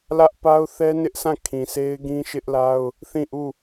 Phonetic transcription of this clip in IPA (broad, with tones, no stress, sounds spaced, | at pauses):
l ä˦ ʔ p a˦ ʊ̯ θ ɛ˦ n ɪ˦ ʔ sʰ ã˦˨ kʰ ĩ˨ s e˦ ɪ̯ ɡ ĩ˦ ʃ ɪ˦ ʔ l a˦ ʊ̯ | θ ĩ˦˨ ʔ u˦˨